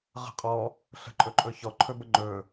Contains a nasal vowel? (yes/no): no